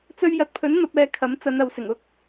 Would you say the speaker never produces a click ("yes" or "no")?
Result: yes